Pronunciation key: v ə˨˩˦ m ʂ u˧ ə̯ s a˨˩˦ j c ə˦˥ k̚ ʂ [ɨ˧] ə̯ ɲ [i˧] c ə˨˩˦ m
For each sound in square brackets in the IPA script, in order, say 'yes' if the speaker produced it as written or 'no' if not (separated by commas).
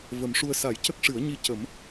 no, yes